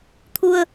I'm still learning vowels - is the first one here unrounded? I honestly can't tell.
no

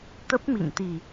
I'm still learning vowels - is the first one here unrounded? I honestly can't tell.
yes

